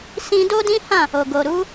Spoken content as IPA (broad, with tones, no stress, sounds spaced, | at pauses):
s ĩ˦ d o˦ d ĩ˦ h ã˦˨ | o˨ ɡ o˨ ɾ u˨˦